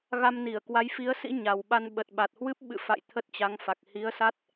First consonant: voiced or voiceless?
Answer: voiced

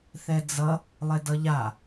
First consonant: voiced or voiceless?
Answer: voiceless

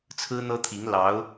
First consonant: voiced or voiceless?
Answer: voiceless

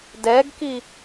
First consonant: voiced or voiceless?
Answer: voiced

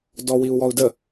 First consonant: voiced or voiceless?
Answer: voiced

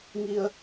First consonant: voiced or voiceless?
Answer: voiced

